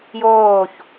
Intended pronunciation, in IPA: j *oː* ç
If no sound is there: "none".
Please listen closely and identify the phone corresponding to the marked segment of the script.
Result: oː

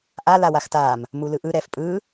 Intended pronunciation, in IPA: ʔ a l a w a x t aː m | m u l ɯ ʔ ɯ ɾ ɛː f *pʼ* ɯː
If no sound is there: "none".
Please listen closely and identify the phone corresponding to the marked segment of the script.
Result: pʼ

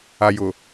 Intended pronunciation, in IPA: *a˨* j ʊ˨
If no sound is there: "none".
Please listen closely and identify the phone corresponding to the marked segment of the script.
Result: a˨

